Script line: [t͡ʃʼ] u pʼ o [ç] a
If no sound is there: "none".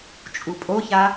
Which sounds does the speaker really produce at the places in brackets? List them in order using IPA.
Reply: t͡ʃʼ, ç

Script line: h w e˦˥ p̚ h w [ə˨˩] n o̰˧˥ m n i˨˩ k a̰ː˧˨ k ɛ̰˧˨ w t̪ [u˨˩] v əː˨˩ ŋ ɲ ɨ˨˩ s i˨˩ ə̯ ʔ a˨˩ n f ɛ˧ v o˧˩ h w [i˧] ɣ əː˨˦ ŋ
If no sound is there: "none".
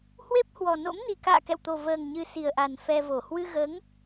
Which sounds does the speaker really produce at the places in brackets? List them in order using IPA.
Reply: ɔ˨˩, o˨˩, ɨ˧

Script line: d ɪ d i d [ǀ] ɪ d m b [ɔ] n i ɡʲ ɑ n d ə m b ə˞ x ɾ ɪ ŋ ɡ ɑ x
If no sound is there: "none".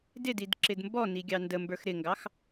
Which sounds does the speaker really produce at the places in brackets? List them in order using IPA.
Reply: ǁ, ɔ

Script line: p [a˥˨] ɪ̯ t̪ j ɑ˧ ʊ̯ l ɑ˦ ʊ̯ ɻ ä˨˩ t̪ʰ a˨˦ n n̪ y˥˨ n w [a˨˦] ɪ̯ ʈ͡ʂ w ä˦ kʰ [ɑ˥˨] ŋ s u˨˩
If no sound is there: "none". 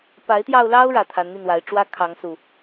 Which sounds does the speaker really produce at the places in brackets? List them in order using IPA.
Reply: a˨˦, a˨˦, ɑ˨˦

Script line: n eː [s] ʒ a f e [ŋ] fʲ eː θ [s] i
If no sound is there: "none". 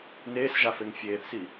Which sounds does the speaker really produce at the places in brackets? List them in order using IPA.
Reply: s, ŋ, s

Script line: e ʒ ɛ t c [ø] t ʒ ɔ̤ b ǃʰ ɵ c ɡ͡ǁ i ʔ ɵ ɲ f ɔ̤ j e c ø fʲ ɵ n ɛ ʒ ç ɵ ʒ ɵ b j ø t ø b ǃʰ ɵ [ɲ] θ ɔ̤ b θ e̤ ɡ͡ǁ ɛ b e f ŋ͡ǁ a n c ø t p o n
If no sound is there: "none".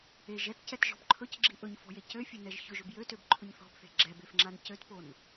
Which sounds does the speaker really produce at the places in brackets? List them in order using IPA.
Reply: ɛ, ɲ

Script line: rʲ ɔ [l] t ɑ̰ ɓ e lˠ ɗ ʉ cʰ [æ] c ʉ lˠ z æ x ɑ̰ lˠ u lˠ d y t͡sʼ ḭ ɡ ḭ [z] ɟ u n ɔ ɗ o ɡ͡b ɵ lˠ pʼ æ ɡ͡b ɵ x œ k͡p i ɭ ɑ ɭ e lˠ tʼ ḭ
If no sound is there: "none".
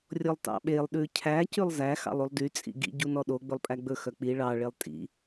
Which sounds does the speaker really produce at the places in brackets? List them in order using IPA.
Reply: lˠ, æ, none

